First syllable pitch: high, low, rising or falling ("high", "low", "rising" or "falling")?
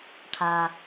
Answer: low